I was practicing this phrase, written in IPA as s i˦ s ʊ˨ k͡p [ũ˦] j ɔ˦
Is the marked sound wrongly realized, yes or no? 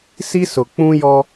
no